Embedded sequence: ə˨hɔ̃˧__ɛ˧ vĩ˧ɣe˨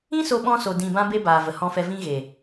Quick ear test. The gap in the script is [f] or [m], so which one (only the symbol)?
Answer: f